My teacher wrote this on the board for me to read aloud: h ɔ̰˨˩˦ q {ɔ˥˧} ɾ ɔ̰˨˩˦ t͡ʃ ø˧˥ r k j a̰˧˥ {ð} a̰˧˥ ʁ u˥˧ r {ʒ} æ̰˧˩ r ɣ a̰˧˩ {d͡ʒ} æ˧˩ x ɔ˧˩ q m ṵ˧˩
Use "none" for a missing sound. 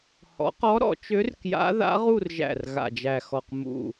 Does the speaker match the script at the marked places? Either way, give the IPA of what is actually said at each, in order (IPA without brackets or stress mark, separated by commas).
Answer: ɔ˧˥, ð, ʒ, d͡ʒ